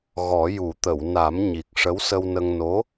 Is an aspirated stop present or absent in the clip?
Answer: absent